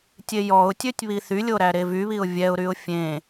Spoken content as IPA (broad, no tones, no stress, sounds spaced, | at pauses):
tʲ e j ɔ ʊ̯ tʲ ø tʲ β i θ y lʲ o ɾ æ ɾ e v y β i ʊ̯ vʲ ɛ ʊ̯ ɾ y ʊ̯ fʲ ẽ